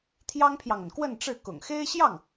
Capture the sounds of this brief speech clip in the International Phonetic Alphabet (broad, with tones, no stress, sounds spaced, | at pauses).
t̪ʰ j ɑ˥ ŋ pʰ j ɑ˨ ŋ ə˩ n k w ə˥˧ n ʈ͡ʂ ɻ̩˥˩ k ʊ̰˨˩ ŋ x e˥ ɪ̯ ɕ j ɑ˥˩ ŋ